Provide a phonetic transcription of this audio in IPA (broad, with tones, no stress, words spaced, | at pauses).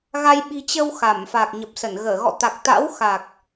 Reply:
ɣa˧j ɓi̤˨˩t͡ɕə˧w xa˧˩mfaː˨˩k̚ɲə˨˩p̚sə˧˩n ɣəː˧˩ɣɔ̰˧˨t̪a˨˩k̚t̪a̰˧˥w xa˨˩k̚